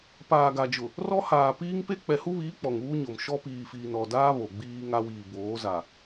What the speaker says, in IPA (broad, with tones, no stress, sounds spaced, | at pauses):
p aː˨ ɡ a˨ d͡ʒ ʊ˨ | r ɔ˦ h aː˨ p iː˦ ŋ p e˦ k͡p ɛ˨ h u˦ β iː˨˦ k͡p ɔ˨ ŋ uː˦ ɲ o˨ m ʃ ɔ˦ p iː˨ f iː˨ n ɔ˨ d aː˦ β o˨ ɡ͡b iː˦ ŋ a˦ w iː˨ b oː˨˦ z a˨